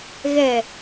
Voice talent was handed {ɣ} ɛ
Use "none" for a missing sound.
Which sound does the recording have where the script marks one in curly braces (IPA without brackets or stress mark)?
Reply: ɣ